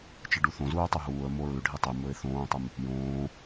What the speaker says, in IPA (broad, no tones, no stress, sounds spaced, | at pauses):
t͡ʃ ɨ ɖ u θ õ z uː tˤ ɵ ɦ uː ə̯ m o ɹ ʉ ɖʱ i tˤ e m ɵ ɪ̯ θ õː tˤ ɨ m | j õː